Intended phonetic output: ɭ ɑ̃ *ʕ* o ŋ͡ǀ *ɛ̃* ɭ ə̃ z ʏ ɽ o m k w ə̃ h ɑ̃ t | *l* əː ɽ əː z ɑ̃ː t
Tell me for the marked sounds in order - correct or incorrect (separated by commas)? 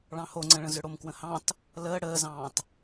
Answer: incorrect, incorrect, correct